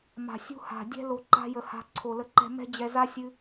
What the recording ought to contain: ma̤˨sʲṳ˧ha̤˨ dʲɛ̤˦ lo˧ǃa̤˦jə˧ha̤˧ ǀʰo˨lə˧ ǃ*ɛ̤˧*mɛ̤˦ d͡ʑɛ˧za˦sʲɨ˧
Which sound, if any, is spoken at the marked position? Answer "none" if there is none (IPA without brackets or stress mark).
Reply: ɛ̤˧